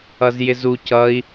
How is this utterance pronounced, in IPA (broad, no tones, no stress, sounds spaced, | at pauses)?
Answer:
ʌ z j ɪ z u c ʌ i̯